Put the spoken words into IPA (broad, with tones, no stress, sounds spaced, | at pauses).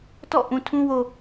t ɔ̰˦˨ ʔ ũ˨ tʰ ũ˦ w o˨